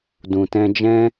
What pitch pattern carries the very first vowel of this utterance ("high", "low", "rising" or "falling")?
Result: low